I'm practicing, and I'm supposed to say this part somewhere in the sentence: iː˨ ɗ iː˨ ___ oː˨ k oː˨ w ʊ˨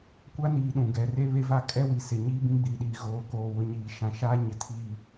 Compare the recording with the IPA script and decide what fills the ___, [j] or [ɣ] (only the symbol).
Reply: ɣ